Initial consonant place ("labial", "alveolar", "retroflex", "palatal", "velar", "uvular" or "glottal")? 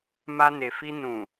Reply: labial